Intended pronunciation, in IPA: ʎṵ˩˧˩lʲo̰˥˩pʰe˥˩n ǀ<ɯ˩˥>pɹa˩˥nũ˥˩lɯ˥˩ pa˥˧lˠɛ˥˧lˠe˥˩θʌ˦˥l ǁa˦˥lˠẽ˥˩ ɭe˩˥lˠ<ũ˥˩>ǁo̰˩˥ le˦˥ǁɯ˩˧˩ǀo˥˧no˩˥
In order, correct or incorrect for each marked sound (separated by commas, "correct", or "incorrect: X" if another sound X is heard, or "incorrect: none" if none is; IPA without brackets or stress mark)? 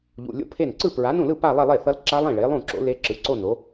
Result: incorrect: ɯ˥˩, correct